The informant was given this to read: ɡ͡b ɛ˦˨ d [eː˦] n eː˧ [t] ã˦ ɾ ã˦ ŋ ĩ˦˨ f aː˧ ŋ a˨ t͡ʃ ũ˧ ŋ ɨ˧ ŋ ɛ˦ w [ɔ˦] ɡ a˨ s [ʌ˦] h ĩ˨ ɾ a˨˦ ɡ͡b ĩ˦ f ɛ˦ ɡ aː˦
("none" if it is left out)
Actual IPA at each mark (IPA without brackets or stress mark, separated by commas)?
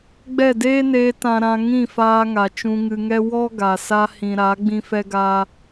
eː˦, t, ɔ˦, a˦